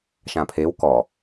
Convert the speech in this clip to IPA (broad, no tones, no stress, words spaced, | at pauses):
ʃãpʰew kɔ